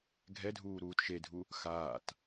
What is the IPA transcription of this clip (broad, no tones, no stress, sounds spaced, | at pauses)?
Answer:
ɡʱ ɛ dʱ uː ɾ uː t ʃ e dʱ u | x aː t